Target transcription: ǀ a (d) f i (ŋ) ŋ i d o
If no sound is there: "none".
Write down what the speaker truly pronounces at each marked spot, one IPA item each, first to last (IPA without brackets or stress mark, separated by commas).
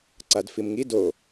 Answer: d, m